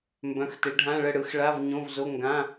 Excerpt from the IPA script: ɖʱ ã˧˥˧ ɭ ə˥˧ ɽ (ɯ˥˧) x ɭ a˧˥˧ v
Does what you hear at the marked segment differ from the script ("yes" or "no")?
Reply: yes